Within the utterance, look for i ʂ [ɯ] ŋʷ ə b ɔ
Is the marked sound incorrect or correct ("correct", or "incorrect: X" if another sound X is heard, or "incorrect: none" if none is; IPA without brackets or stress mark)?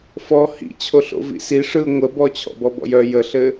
correct